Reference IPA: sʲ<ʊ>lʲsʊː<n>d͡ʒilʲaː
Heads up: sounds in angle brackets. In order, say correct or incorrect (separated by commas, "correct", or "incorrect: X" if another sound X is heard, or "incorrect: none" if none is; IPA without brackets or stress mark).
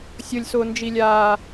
correct, correct